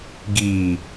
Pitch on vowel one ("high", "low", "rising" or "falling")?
low